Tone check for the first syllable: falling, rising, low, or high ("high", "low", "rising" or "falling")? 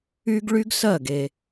high